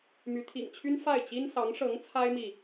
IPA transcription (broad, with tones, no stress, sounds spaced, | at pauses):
m y˧˥ t̪ʰ ḭ˨˩ ŋ t͡ɕʰ y˥ n f a˥˩ ɪ̯ t͡ɕ i˥ n s ɑ˧˥ ŋ ʂ ɤ˧˥ ŋ t͡sʰ a˥ ɪ̯ m i˨